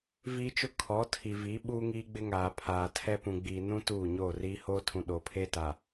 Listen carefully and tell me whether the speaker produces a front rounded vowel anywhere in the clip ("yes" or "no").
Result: no